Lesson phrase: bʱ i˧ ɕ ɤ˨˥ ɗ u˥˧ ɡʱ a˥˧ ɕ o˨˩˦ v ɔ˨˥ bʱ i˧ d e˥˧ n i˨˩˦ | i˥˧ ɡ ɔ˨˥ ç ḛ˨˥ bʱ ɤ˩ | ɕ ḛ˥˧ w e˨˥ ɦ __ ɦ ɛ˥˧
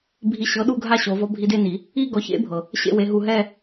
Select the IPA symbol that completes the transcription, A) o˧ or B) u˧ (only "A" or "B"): B